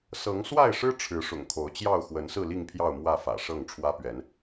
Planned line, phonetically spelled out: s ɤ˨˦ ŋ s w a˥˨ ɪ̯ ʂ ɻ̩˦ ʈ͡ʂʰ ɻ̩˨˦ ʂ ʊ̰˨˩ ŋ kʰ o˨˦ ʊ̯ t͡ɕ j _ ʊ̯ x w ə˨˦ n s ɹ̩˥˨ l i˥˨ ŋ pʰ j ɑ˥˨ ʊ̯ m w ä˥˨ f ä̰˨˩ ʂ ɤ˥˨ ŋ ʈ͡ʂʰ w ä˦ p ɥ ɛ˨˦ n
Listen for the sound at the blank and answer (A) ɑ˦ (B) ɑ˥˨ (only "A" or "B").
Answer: B